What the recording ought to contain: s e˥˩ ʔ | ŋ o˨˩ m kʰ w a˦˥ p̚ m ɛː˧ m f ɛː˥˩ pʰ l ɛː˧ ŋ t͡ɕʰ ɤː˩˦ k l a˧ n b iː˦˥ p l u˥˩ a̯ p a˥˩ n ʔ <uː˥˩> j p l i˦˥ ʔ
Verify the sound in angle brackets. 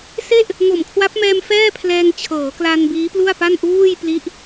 correct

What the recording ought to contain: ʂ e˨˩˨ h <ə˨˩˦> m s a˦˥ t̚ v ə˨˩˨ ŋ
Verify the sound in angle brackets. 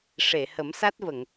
correct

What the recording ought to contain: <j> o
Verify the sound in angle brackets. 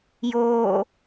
correct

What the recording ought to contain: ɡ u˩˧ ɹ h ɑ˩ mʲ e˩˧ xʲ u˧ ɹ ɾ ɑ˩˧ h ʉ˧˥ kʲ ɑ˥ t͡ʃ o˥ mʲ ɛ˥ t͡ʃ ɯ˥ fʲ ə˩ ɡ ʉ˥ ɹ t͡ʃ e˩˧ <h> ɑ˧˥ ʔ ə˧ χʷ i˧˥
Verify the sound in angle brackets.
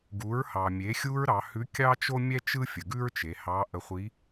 correct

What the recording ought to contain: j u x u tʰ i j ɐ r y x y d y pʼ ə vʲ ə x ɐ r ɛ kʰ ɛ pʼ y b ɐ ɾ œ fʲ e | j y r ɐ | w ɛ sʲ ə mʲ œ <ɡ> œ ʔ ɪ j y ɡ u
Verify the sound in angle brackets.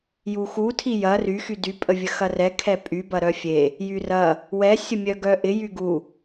correct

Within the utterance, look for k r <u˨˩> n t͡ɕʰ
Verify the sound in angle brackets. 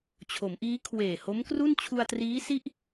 incorrect: u˥˩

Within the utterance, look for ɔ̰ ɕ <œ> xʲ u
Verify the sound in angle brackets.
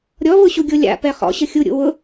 incorrect: ə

